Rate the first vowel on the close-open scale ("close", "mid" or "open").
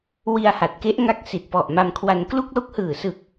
close